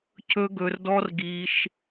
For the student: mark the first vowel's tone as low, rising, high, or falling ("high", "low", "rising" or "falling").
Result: high